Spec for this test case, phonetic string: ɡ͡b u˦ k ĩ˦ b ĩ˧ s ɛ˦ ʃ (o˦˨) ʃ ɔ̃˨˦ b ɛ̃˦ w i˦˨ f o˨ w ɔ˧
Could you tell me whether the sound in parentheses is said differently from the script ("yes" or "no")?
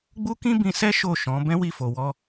no